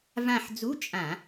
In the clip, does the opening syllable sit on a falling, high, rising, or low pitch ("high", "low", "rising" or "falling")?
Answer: falling